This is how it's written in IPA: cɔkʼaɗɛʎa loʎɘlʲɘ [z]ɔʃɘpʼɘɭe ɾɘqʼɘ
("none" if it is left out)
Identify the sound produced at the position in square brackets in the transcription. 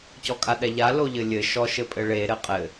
ʃ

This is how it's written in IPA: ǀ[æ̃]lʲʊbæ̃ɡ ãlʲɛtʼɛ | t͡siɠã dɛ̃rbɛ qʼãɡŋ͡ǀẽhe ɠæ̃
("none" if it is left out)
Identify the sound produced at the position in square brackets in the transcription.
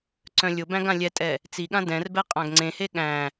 œ̃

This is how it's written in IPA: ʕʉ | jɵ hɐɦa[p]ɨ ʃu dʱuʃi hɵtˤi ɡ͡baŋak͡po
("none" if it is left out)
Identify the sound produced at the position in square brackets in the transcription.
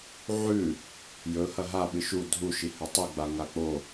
ɓ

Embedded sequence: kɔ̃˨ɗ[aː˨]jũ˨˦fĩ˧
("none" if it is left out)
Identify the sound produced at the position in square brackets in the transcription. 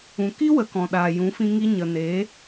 aː˨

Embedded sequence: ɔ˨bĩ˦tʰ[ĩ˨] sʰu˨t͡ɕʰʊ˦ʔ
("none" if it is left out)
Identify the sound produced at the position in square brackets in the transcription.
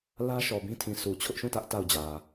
ĩ˨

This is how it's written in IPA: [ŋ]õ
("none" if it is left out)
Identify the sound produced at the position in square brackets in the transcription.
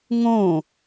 ŋ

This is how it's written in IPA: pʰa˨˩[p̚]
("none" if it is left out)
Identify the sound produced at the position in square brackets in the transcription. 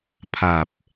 p̚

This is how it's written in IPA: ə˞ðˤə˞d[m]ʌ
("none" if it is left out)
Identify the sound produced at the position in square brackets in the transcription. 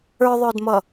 m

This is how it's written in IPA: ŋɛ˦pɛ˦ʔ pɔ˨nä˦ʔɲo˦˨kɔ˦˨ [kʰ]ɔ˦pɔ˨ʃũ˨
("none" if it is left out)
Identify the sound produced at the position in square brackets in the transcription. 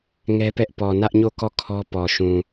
kʰ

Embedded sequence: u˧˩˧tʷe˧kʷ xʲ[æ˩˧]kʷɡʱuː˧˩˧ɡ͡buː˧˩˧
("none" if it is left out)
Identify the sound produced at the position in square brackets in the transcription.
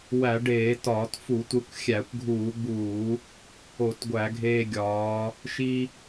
æ˧˩˧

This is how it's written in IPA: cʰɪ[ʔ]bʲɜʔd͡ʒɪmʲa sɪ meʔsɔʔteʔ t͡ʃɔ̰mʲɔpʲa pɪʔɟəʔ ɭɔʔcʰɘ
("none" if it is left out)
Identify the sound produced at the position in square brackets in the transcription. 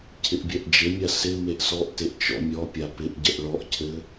ʔ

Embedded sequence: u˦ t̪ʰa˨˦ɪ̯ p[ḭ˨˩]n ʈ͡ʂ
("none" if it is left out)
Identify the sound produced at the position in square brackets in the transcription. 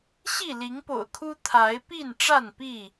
i˥˨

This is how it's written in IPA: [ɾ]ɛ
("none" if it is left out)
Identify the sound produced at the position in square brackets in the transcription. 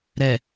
ɾ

